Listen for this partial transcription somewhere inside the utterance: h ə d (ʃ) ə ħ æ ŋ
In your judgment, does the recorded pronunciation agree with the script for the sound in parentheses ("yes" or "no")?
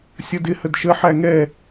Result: yes